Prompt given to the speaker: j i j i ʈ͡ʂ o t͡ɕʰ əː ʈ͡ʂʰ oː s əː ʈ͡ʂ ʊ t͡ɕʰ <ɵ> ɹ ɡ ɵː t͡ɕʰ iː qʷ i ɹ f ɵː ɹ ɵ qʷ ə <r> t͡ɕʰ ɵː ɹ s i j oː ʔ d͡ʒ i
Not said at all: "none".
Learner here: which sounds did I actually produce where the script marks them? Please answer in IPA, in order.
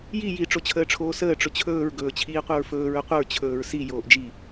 ɵː, ɹ

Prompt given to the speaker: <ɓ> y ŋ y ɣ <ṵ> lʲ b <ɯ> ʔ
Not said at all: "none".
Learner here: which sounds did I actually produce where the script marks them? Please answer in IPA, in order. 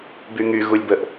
b, u, ə

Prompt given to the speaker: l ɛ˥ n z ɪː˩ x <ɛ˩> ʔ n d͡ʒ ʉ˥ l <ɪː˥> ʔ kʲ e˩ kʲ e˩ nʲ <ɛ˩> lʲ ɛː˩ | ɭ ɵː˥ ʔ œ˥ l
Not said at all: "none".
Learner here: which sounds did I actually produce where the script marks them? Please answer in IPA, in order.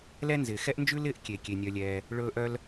ɛ˥, ɪː˥, œ˩

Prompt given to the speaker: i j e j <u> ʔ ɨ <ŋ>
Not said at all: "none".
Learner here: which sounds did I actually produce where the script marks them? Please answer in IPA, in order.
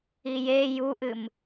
u, m

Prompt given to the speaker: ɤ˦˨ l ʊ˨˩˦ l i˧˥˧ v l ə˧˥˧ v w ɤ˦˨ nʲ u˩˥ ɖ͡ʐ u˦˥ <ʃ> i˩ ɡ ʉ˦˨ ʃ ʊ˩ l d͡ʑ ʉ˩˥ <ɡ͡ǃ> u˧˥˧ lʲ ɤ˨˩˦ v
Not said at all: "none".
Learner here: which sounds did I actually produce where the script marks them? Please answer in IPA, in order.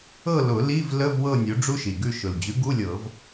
ʃ, ɡ

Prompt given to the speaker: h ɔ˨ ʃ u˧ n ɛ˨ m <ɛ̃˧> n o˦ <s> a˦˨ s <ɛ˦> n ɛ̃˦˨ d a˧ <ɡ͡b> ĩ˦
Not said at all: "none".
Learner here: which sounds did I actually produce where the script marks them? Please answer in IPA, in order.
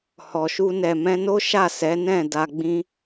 ɛ̃˧, ʃ, ɛ˨˦, ɡ͡b

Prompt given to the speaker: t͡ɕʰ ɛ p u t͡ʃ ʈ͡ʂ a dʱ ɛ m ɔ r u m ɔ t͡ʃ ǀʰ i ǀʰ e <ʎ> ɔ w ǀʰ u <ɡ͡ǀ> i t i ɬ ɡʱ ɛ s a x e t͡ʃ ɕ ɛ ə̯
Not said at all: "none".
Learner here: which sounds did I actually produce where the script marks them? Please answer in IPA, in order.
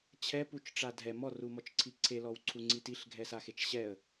l, ŋ͡ǀ

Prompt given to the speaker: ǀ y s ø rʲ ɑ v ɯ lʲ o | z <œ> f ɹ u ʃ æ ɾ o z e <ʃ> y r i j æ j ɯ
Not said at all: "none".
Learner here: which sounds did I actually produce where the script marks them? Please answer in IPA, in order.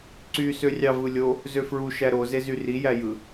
ø, z

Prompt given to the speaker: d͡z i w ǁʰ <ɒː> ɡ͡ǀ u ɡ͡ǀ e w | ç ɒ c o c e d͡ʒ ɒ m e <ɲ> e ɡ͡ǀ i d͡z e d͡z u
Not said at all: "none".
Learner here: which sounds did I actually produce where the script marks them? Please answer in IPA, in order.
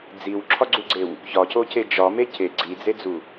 ɒ, c

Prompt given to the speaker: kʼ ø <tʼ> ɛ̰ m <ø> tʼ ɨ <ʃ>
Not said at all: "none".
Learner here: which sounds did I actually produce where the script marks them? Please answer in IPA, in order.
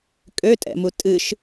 tʼ, u, ʃ

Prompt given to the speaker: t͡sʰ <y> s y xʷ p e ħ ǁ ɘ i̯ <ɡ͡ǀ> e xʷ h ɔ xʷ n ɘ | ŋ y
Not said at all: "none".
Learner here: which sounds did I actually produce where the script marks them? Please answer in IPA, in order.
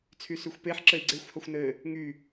y, ɡ͡ǀ

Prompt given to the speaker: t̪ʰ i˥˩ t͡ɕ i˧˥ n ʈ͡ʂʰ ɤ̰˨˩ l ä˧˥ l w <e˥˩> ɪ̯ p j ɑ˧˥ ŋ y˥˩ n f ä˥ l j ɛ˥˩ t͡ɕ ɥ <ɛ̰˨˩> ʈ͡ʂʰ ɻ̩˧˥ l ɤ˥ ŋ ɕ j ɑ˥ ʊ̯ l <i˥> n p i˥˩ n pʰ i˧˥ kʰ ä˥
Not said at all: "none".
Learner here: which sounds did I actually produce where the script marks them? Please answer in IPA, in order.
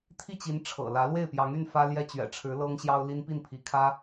e˥˩, ɛ̰˨˩, i˥

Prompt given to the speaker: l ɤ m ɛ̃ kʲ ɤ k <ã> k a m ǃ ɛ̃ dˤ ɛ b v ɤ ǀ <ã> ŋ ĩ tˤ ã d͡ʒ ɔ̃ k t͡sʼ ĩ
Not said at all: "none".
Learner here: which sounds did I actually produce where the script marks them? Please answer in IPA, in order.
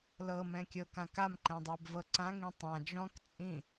ã, ã

